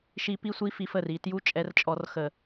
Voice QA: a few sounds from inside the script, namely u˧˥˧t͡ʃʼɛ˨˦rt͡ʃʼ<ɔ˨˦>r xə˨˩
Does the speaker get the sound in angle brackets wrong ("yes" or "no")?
no